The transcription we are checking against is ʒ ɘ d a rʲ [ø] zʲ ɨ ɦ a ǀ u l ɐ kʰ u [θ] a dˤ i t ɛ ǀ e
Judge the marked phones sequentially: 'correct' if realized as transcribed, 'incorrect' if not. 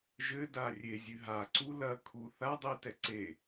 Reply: incorrect: e, correct

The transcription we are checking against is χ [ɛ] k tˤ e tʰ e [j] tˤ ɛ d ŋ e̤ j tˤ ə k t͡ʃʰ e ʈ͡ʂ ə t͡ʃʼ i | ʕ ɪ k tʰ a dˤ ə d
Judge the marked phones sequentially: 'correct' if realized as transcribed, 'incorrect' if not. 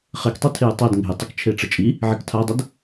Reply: incorrect: e, correct

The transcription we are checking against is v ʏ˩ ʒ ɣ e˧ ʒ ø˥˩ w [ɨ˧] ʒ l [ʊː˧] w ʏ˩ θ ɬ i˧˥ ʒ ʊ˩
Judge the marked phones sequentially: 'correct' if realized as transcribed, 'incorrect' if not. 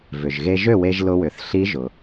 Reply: incorrect: e˧, incorrect: ʊ˧

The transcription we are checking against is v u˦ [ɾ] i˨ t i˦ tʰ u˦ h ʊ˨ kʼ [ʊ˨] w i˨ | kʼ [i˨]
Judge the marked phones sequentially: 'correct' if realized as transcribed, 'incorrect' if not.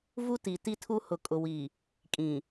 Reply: incorrect: t, correct, incorrect: ĩ˨

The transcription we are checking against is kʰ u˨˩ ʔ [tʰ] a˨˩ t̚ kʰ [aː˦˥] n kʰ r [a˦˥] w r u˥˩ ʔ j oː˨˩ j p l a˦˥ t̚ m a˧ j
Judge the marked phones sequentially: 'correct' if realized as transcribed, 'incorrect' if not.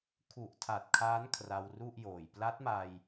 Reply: correct, correct, incorrect: a˧

